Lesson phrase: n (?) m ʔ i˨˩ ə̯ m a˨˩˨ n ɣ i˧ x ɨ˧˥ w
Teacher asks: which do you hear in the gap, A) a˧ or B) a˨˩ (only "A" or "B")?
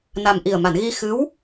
B